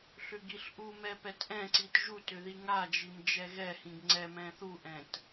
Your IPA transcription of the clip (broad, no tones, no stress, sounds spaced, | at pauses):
ɬ ʏ ɡ i ɬ ʔ u m ɛ p ɛ t ʔ ɛ̃ ǀ i t ʒ u t ʏ ð i ŋ a d͡ʒ i m d͡ʒ ɛ ɣ ɛ h ĩ ɡ ŋ͡ǀ ɛ m ɛ̃ θ u ʔ ɛ̃ t